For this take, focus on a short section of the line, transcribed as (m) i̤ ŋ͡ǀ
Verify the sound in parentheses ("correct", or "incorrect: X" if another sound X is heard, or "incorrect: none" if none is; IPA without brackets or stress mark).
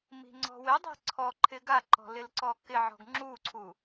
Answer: correct